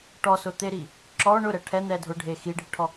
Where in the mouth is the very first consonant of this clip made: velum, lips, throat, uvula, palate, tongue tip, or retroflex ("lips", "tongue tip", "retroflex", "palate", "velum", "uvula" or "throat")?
retroflex